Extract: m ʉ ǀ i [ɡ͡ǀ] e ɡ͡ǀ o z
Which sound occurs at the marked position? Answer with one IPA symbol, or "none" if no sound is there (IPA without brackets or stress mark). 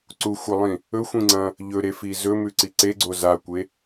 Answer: ǀ